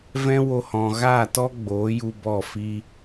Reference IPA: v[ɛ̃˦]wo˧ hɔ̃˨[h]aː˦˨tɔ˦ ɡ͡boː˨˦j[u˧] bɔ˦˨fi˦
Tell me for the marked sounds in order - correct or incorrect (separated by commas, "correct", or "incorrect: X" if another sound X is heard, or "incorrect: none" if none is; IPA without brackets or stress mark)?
correct, incorrect: ɣ, correct